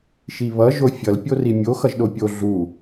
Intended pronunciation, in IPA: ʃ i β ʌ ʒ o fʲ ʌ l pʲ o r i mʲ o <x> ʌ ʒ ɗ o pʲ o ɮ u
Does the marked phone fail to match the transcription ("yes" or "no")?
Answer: no